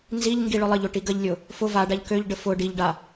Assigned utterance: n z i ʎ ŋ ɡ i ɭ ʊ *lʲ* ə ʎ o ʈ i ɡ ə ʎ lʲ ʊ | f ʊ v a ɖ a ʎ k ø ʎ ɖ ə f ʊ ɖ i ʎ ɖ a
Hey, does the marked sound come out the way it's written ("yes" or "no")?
no